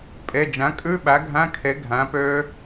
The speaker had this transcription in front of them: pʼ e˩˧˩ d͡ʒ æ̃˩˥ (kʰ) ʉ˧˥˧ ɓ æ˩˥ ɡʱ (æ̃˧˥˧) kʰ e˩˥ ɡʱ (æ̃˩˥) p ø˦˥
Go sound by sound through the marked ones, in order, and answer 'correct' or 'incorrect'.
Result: incorrect, correct, correct

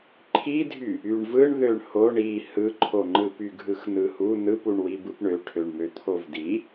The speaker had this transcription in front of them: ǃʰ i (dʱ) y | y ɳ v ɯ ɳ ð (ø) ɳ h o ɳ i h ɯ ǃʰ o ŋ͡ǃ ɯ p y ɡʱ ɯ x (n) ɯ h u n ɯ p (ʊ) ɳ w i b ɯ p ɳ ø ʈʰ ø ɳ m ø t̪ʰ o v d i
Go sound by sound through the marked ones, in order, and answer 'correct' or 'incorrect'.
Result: correct, correct, correct, incorrect

